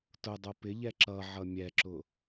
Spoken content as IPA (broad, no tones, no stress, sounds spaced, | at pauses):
t ʊ dˤ ʊ p ɪ ʎ ɛ ǁ ʌ ʕ ʌ mʲ ɛ ǁ ʊ